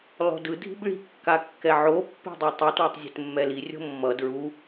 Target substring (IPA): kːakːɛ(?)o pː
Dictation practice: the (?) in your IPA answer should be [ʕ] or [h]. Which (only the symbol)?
ʕ